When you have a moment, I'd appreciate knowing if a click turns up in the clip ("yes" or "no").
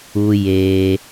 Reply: no